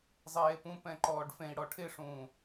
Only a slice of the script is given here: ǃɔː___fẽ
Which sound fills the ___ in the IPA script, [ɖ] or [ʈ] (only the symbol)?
ɖ